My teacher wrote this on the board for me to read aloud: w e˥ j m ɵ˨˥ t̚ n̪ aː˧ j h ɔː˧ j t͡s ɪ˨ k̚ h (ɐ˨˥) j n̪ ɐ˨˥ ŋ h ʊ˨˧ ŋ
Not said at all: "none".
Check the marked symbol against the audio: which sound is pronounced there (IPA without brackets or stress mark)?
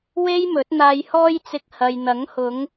ɐ˨